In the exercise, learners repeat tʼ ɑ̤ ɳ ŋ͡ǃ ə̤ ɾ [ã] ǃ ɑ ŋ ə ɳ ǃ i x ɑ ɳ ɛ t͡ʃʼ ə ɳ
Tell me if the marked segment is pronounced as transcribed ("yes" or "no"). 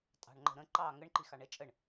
no